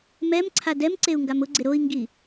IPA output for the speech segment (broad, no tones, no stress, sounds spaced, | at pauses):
m ɛ m ǀʰ a d ɛ m ǀ e u̯ ŋ ɡ a m ʊ ɡ͡ǀ ɪ ɾ o i̯ ŋ ɡ i